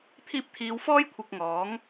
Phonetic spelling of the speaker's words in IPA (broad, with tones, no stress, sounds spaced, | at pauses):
t̪ʰ iː˧ p̚ t̪ʰ iː˨˧ w f ɔː˥ j kʷʰ ɪ˧ k̚ ŋ ɔː˨˥ ŋ